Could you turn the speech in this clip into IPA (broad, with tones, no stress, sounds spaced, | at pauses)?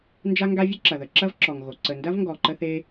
n d͡ʒ a˥ ŋ ɡ a˥ vʲ ə˥ ǁ ɐ˩ ð ə˩ ǁ ɐ˥ v ǁ ɔ˩ ŋ ɣ o˩ ǀ ə˩ n d ɐ˥ v ŋ ɡ ɔ˩ ǃ ə˥ θ e˥